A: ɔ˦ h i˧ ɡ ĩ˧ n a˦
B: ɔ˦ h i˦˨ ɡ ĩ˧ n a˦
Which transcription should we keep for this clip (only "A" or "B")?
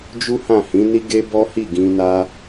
B